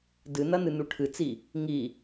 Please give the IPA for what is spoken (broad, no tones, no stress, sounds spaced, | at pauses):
d ɨ n ɐ n ɨ n u ʈʰ ɨ t͡s i | ŋ i